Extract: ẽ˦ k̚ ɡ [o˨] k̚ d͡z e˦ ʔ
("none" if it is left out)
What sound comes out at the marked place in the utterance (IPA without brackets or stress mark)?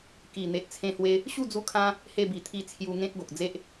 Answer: o˨